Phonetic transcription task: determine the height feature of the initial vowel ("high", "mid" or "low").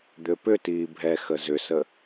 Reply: high